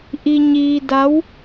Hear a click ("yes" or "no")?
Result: no